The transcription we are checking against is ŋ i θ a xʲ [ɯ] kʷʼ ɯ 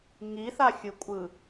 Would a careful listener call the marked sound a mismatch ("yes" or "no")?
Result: no